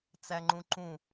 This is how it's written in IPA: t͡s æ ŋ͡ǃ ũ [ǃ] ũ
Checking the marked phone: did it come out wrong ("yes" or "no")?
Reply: no